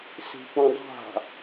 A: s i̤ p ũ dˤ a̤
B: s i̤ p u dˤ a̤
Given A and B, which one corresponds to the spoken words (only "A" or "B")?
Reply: A